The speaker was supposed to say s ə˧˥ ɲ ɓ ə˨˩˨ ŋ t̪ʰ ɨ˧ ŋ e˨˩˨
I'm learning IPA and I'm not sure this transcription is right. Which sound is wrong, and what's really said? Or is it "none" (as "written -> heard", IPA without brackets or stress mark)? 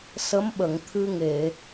ɲ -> m